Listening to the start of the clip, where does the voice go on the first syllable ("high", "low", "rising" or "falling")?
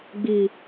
low